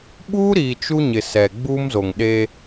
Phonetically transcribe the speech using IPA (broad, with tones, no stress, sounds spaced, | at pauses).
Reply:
ɓ uː˦ ɾ iː˨ t͡ʃ u˦ ɲ ɪ˨ s ɛ˨ ɡ͡b uː˦ m z o˨ ŋ ɗ eː˦